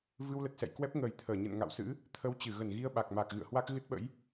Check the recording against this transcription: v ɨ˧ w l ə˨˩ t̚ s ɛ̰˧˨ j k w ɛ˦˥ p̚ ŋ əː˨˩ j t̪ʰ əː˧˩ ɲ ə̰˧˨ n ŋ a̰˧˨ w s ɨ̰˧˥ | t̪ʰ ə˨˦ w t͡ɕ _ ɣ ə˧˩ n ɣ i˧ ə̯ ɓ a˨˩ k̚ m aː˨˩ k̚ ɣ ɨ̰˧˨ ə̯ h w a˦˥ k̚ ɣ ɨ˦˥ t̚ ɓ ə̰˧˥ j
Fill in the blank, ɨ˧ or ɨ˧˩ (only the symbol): ɨ˧˩